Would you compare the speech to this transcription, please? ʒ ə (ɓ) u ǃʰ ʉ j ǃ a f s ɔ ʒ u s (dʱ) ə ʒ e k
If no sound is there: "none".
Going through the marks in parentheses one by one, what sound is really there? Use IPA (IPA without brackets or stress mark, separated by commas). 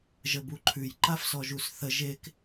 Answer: b, θ